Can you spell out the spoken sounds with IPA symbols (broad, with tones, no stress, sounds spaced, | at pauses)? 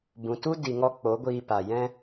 b ũ˨ t u˦ d i˨ ŋ ɔ˧ k͡p o˨˦ ɡʷ iː˧ p a˨ j ɛ̃˦